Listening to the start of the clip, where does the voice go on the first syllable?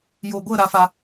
low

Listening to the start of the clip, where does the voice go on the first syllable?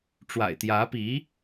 low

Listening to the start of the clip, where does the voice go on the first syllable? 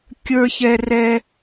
high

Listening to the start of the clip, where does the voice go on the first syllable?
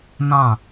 falling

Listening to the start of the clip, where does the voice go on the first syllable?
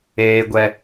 high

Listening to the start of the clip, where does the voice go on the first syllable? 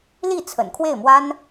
falling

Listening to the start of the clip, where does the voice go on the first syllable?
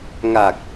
low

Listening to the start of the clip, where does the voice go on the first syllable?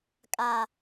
low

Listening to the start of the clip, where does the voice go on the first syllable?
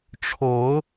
rising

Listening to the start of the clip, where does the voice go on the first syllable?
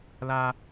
high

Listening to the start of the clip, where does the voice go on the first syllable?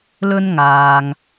high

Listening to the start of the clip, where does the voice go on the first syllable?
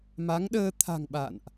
rising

